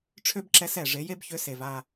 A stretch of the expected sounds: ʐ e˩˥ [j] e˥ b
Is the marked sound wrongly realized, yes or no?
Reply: no